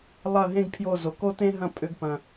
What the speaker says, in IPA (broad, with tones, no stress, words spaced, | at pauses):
lˠɐ˦˨ɦẽ˦ɡ pʰjo˦˨zo˨ ko˦tẽ˦ɦɐ̃˦˨ pʼʏ˧ɡpɐ̃˨